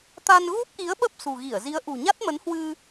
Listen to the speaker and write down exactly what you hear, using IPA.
t̪ a˧ n ɣ u˦˥ p̚ ʔ i˨˦ ə̯ ɓ ə˦˥ p̚ s ṳ˨˩ ɣ i˧˩ ə̯ z i˨˦ ə̯ ʔ ṳ˨˩ ɲ a˦˥ t̚ m ə˨˦ n h w ɨ˧

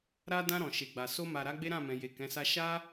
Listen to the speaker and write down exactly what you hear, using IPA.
ɾ a˧ d ã˧ ɾ ɔ̃˨ ʃ e˨ ɡ͡b a˨ s o˧ m a˨ ɾ a˨˦ ɡ͡b e˦ ɾ ã˦˨ m ɛ̃˨ j e˨ k ɛ̃˨˦ s a˦ ʃ a˦

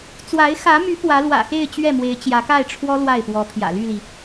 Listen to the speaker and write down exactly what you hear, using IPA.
t͡s w a˧˥ ɪ̯ x ä˧˥ m y˧˥ p w ä˧˥ l w ä̰˨˩ x e˥˧ ɪ̯ t͡ɕ ɥ ɛ˥˩ m w e˧˥ ɪ̯ t͡ɕ j ä˧˥ k a˥˩ ɪ̯ ʈ͡ʂʰ w ɔ˥ l w a˥˩ ɪ̯ p w ɔ˧˥ pʰ j ä̰˨˩ l y˥˩ l i˩

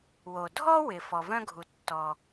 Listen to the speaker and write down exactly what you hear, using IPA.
w o˩ dʱ ɔ˥ w ɪ˩ f ɔ˩ v œ̃˥ ɡʱ u˩ tː ɔ˩

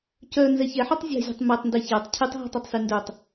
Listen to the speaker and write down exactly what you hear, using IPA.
c œ n z ɛ ç ɛ ħ ɔ tˤ zʲ a̤ zʲ ɔ̤ tˤ m ɛ tˤ n d ɛ ç a tˤ cʰ ɨ tˤ ɦ ɛ̤ tˤ ɔ tˤ s y n d œ tˤ

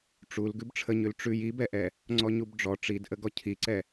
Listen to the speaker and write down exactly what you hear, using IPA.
ʈ͡ʂ u l ɡ ʉ b ʈ͡ʂʰ ə ɲ ʉ l ʈ͡ʂ ʉ j i b ɛ ʔ ɛ | ŋ͡ǀ ɔ ɲ u b ɖ͡ʐ ɔ ʈ͡ʂ i d ʔ ə ɡ ɔ cʰ i ǀ ɛ

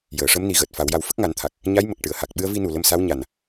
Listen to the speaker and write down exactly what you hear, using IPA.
j əː˨˩˨ ʂ ə˧˥ m n i˨˩ ɣ əː˨˩ t̚ f a˨˩˦ w j a˧ w f ə˦˥ k̚ ŋ a˨˩˦ n t̪ʰ a˨˩ k̚ | ɲ a˧˥ j m ə˨˩ k̚ ʈ ɨ˨˩˨ ə̯ h a˨˩ k̚ ɓ ɨ˧ ə̯ v i˧ n u˨˩ l ə˧ m s a˧˥ w ɲ a˨˩ n

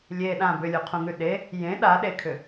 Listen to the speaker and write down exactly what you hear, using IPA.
lʲ e ɗ ã b ʏ lʲ u qʰ ũ ŋ ʉ ɗ e | j ẽ ɗ a ɗ e kʰ ʏ

